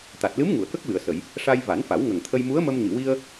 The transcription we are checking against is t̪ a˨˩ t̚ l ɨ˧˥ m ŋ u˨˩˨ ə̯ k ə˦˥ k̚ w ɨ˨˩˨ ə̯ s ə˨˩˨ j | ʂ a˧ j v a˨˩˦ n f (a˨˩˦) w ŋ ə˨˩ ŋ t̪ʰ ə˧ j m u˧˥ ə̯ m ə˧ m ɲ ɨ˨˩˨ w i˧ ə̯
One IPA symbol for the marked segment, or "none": a˨˩˦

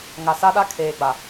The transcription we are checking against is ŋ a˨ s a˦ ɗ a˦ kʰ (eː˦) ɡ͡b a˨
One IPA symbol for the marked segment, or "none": eː˨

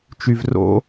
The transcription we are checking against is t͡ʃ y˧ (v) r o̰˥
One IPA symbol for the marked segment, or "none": v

